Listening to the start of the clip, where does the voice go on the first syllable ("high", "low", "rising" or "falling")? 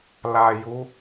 low